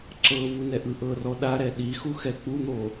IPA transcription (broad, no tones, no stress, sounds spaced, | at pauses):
ǁ ɤ v u n ɛ ʔ ɯ ʔ ɤ r ɔ ɗ a ɾ ɛ ɗ i x u x ɛ k͡p u n̪ o